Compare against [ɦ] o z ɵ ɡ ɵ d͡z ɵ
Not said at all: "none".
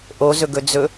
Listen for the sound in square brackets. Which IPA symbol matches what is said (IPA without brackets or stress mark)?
ʔ